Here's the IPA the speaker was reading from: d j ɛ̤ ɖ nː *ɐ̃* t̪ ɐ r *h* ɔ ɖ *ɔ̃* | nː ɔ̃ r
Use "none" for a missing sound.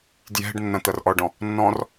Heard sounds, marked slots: ɐ̃, ʔ, ɔ̃

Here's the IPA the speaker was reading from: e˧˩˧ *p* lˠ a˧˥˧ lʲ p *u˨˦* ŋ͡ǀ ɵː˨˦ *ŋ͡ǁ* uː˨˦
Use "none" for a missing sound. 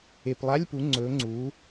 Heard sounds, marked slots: p, u˨˦, ŋ͡ǀ

